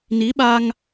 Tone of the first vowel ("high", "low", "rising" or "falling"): rising